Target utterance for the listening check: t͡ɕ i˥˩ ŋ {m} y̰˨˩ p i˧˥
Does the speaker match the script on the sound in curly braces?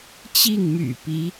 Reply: yes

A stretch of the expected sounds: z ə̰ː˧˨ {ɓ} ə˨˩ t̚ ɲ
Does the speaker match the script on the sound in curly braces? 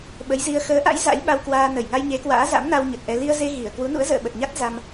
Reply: yes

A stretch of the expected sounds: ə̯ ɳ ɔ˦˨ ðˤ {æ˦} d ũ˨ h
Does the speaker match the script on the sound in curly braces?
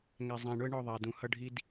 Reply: no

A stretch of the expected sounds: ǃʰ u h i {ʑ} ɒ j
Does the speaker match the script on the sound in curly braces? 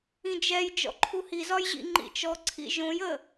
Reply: no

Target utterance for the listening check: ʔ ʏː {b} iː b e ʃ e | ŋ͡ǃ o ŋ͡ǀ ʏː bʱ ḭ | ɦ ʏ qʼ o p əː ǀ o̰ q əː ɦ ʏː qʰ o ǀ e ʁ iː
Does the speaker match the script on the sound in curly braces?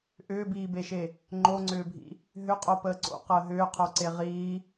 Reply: yes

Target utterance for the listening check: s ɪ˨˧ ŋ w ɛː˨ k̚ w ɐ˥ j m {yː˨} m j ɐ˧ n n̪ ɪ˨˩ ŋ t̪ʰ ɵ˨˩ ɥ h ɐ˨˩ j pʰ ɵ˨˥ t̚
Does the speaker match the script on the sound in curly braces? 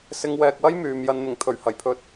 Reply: yes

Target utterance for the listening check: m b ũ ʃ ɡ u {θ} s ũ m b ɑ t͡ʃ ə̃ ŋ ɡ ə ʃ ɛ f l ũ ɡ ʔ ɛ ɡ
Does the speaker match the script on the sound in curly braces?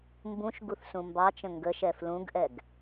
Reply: yes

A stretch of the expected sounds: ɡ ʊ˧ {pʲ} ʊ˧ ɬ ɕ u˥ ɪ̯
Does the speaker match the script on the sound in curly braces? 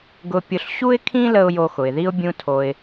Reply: yes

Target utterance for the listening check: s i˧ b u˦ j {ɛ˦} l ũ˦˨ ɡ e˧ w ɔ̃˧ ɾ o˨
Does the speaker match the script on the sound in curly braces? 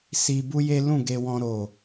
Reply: no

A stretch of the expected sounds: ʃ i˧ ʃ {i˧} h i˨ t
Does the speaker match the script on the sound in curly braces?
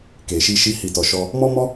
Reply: yes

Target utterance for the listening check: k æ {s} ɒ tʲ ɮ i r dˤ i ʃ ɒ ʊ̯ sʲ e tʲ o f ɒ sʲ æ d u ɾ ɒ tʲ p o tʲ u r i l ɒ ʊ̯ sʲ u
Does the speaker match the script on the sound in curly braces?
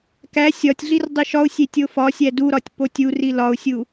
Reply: no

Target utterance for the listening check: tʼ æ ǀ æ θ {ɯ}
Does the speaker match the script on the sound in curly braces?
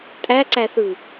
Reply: yes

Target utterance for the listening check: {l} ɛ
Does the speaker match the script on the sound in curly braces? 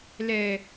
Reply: yes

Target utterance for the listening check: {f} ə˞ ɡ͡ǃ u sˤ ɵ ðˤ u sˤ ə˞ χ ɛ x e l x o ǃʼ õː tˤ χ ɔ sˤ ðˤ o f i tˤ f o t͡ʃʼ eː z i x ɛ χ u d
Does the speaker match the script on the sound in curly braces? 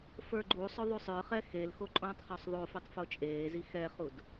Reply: yes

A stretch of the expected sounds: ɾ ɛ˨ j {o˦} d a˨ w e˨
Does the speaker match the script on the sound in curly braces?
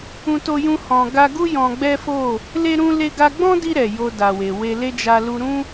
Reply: no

